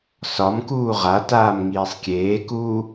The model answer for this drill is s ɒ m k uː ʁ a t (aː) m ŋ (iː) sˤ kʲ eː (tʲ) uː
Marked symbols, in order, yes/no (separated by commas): yes, yes, no